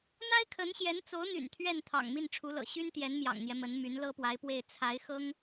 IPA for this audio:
n̪ a˥ ɪ̯ kʰ ə˧˥ n ɕ j ɛ˧˥ n t͡s o˧˥ ʊ̯ n̪ y̰˨˩ n t̪ʰ ɥ ɛ˥˩ n t̪ʰ ɑ̰˨˩ ŋ m i˥˩ n ʈ͡ʂʰ u˧˥ l ɤ̰˨˩ ɕ y˥ n t̪ j ɛ˧˥ n m j ɑ̰˨˩ ŋ n̪ j ɛ˦ m ə˧˥ n m y˧˥ n l ɤ˥ p w a˧˥ ɪ̯ p w e˥˩ ɪ̯ t͡sʰ a˧˥ ɪ̯ x ɤ˥ ŋ

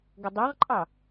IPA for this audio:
ɡ ə dˤ ɑ ʁ ǃʼ ɑ

